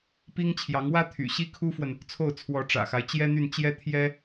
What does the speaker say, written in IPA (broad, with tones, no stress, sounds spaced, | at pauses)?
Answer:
p i˥ ŋ t͡ɕʰ j ɑ˧˥ ŋ w ä˥ t̪ʰ y̰˨˩ ɕ i˥ kʰ u˥ f w ə˨ n | t͡sʰ o˥˩ ʊ̯ t͡sʰ w ɔ˧˥ ʈ͡ʂ ä̰˨˩ x a˦ ɪ̯ t͡ɕ j ɛ˥ n̪ y˥˩ n t͡ɕ j ɛ˥ t̪ʰ j ɛ˥